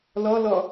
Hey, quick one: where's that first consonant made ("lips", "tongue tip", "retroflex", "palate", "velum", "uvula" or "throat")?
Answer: tongue tip